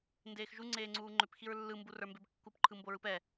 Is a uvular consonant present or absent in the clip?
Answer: absent